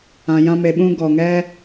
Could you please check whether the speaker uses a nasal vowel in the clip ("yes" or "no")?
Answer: yes